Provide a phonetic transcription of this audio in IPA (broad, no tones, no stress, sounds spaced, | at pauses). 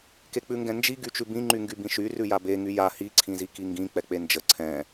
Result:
k e k͡p ʉ ŋ ɡ ɛ̃ n d͡ʒ i ɡ y t͡ʃ ʉ b ĩ ŋ͡ǃ y ŋ ɡ y b ĩ ʃ y r ʉ j a b e ŋ y j a h i ǀʰ ĩ z i k i ŋ ɡ ĩ k͡p ɛ k͡p e n d͡ʒ ə ǀʰ ɛ̃